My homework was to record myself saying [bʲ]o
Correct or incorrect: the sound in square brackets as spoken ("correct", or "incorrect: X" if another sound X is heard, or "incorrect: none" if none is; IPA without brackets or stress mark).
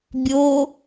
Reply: correct